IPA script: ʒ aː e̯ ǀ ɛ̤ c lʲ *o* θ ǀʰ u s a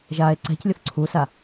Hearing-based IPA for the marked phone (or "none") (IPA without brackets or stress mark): o